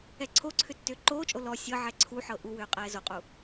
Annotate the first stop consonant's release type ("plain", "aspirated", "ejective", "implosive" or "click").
click